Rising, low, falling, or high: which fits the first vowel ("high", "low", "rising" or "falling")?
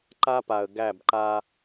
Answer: high